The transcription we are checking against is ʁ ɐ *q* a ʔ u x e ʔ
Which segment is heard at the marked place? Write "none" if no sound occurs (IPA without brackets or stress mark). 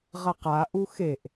q